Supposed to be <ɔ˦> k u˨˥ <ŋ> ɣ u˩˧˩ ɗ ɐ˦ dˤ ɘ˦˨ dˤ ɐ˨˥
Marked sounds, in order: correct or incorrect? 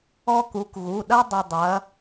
correct, incorrect: k

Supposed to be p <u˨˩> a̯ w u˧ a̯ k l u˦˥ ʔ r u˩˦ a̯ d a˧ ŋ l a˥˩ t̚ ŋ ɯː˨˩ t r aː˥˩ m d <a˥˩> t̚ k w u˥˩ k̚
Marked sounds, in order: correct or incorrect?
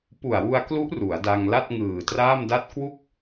correct, correct

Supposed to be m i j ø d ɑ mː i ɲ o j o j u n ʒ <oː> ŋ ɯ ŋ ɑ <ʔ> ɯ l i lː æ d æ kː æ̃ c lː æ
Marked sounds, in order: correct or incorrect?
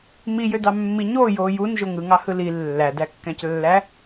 incorrect: o, incorrect: h

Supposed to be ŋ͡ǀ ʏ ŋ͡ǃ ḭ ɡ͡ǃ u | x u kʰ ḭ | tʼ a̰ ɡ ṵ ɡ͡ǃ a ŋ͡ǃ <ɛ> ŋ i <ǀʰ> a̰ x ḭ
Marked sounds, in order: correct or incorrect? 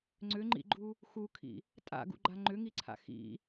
incorrect: ʏ, correct

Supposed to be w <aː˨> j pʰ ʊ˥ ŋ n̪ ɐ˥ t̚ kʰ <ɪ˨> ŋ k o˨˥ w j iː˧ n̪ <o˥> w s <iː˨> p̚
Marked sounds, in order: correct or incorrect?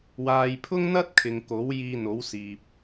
correct, correct, incorrect: o˨˥, correct

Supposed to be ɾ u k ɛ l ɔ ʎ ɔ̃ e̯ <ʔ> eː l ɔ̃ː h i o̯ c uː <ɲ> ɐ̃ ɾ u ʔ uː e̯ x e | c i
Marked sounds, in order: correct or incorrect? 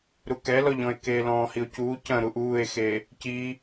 incorrect: k, incorrect: c

